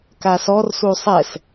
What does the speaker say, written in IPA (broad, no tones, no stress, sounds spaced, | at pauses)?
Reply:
k a s ɔ r s u sˤ ɛ s